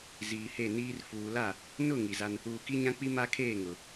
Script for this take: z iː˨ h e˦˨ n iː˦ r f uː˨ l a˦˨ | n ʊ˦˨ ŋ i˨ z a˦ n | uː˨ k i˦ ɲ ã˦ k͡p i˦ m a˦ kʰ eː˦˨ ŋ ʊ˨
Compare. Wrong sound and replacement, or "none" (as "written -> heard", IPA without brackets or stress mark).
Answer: none